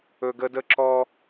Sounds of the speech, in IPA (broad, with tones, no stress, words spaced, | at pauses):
ɵ˦ɡə˥ də˥ ǁɔ˥